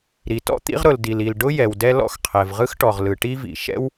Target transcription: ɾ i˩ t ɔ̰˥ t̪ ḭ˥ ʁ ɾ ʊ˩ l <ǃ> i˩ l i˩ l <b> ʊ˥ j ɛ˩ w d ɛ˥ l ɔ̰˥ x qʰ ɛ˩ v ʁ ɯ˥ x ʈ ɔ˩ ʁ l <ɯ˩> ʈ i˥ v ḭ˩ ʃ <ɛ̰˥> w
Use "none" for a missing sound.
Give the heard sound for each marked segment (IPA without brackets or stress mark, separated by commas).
d, ɖ, ɯ˩, ɛ̰˥